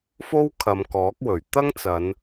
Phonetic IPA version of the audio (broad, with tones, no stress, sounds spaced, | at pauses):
f o˥ w kʰ ɐ˨˧ m k ɔː˨˥ k̚ w ɵ˨˩ ɥ t̪ ɐ˥ ŋ t͡s ɐ˨˧ n